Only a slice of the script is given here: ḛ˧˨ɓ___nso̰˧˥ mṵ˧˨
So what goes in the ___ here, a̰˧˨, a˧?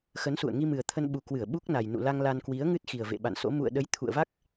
a̰˧˨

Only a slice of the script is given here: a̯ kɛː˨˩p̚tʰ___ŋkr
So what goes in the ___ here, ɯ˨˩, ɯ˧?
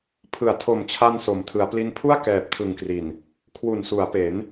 ɯ˨˩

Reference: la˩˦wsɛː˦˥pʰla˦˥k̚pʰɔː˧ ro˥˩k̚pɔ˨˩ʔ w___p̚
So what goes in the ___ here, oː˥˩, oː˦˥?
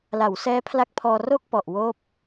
oː˥˩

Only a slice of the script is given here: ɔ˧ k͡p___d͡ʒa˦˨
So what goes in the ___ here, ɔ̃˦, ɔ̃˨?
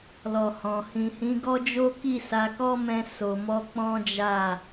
ɔ̃˦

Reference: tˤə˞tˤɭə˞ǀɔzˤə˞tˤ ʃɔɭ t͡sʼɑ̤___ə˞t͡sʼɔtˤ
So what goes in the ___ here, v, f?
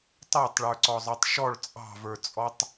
v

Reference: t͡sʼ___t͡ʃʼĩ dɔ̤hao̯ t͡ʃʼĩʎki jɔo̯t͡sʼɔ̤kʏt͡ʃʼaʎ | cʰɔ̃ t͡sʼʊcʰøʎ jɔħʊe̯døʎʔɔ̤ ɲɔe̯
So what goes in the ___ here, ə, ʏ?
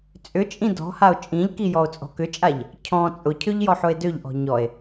ʏ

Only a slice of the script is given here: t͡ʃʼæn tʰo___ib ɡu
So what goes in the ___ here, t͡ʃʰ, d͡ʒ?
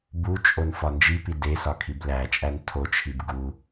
t͡ʃʰ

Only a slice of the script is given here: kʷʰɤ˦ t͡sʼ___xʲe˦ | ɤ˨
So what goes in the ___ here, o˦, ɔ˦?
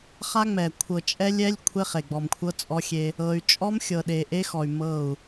ɔ˦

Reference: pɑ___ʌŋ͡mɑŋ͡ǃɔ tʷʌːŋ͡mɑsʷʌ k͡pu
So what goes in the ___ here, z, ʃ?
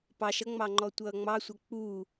ʃ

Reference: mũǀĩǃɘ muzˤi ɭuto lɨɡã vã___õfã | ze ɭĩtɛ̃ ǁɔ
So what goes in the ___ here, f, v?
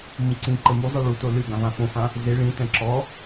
f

